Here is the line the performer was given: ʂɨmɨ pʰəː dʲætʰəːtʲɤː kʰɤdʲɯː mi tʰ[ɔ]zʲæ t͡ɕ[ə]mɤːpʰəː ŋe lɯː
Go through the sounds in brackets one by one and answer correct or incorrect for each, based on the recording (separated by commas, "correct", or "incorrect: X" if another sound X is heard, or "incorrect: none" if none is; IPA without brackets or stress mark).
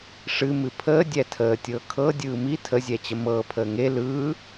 incorrect: ə, correct